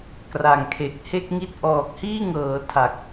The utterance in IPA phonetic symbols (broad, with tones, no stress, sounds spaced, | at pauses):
k r a˨˩ ŋ kʰ e˨˩ k̚ h e˥˩ k̚ ŋ i˥˩ t̚ ʔ ɔː˨˩ k̚ h iː˥˩ ŋ ɤː˩˦ tʰ a˨˩ k̚